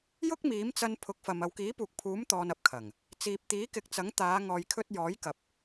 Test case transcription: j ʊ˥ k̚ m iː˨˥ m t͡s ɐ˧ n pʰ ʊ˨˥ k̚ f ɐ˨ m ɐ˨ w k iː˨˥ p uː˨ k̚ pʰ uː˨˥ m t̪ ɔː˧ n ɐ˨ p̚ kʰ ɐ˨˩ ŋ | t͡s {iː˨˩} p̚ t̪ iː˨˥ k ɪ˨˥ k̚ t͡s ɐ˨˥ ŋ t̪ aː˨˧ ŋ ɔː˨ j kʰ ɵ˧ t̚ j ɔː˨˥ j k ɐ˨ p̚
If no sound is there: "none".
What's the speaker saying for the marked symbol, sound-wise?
iː˨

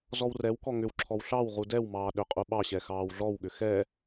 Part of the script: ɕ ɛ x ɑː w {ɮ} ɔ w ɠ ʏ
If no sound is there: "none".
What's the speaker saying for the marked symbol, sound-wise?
ɮ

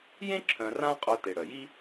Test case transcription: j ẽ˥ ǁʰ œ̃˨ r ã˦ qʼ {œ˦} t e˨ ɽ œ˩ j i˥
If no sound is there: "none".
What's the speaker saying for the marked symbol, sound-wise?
œ˦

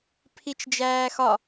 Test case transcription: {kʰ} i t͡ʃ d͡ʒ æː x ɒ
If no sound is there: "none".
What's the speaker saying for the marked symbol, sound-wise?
pʰ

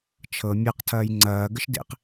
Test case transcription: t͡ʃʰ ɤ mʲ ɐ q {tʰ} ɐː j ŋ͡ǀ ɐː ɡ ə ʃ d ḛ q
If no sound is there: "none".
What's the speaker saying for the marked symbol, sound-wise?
tʰ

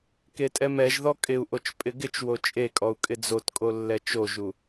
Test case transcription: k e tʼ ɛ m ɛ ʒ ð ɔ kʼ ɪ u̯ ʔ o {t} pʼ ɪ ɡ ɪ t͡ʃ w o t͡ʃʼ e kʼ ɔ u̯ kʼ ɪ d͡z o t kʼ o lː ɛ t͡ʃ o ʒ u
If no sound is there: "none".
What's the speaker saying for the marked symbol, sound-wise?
t͡ʃ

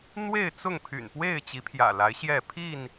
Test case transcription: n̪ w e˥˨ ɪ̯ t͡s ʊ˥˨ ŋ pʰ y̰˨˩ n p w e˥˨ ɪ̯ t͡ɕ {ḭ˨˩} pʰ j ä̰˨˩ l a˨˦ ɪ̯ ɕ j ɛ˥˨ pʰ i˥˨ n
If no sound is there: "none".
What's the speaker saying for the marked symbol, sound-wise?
i˨˦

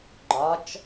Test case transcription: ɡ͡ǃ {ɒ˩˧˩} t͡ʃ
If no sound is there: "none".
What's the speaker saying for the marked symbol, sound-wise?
ɒ˧˥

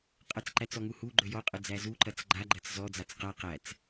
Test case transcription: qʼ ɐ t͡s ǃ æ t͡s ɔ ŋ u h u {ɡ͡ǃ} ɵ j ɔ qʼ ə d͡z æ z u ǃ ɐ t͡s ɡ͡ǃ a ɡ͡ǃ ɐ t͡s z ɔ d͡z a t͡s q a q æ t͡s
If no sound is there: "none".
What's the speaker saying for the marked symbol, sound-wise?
ɡ͡ǃ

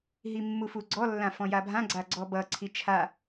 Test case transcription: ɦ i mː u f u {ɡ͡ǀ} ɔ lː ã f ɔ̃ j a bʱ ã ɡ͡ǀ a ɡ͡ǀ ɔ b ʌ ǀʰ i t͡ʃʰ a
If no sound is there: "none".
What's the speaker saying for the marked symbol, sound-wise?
ɡ͡ǀ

